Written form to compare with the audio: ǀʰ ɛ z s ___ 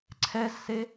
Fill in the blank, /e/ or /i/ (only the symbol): e